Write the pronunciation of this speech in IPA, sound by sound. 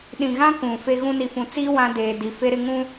ɗ ĩ˨ ɣ ã˦ k ũ˨ f e˦ ɣ ũ˦ n i˨ f ũ˨ t͡s iː˦ w ã˦ d eː˨ d i˨ f e˦ ɾ ɪ˦ ŋ ũ˦

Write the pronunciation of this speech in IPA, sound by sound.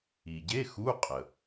i˩ ɟ e˧˥˧ x u˧˥˧ qʼ ə˩

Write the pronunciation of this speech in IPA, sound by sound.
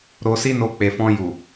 ɾ o˧ s i˦ n o˧ k͡p e˨ f ɔ̃˧ j u˨

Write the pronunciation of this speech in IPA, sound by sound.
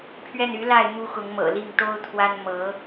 pʰ ɥ ɛ˥˩ n y˧˥ l a˥˩ ɪ̯ m u˥ x ʊ˧˥ ŋ m ɤ̰˨˩ l i˥˩ ŋ t̪ o˥ ʊ̯ t̪ʰ w a˥ n m ɤ˧˥

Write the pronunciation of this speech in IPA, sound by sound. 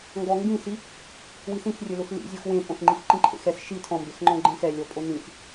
ŋ ɡ ɔ ŋ ɡ ĩ s i | w i s ĩ x rʲ ʊ l ʊ x l ḭ zʲ ɔ x w ẽ pʼ õ s ŋ͡ǃ i x ǃ ĩ ǃʰ ḛ x ɛ s ʃ i tʰ ɔ̃ m b e x ŋ͡ǃ ɔ̃ ɡ͡ǃ ẽ x ɛ lʲ ɔ pʼ o n ĩ x

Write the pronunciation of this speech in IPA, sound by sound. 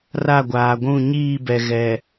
r a˦˨ ɡʷ aː˨ ɡʷ ũ˦˨ ɲ iː˦˨ b ɛ˨ ɣ ɛ˨

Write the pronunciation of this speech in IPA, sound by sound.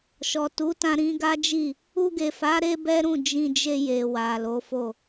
ʃ ɔ˨ t u˨˦ t ã˧ ɾ ĩ˦ ɡ a˦ d͡ʒ i˦˨ | u˧ ɡ e˨ f a˨˦ ɾ e˦ b ɛ˦ ɾ ũ˦˨ d͡ʒ ĩ˧ d͡ʒ e˧ j e˨ w a˨ l o˨˦ f o˦˨

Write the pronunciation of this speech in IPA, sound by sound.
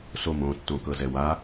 s o m õ tː õ k ɤ z ɛ w a

